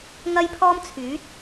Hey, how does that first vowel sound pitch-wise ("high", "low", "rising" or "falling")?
high